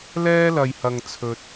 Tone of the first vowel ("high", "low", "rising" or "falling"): high